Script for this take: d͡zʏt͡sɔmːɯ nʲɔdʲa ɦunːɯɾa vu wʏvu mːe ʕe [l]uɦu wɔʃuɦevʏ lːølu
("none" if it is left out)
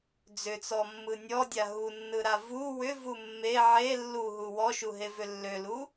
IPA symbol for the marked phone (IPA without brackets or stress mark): lː